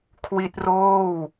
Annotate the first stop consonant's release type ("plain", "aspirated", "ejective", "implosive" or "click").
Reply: aspirated